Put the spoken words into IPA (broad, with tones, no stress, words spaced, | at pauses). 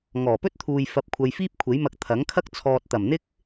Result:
ŋɔː˨˩pɵ˥t̚t̪ʰuː˨j fɐ˧p̚kʷʰɐ˧jfiː˥p̚ kʷʰe˨˥jmɐ˧k̚ t̪ʰɐ˨˥ŋkʰɐ˥k̚ t͡sʰɔː˨t̚t̪ɐ˨˩mn̪ɪ˥k̚